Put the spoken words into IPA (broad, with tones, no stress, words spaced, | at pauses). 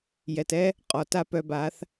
jɛ˨tɛ˦ | qʼɔ˨ta˦ pœ˧ba˨˦θ